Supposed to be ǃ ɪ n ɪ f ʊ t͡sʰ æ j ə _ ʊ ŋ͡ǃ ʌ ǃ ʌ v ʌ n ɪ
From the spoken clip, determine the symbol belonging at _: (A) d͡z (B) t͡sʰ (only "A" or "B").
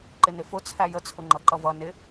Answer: B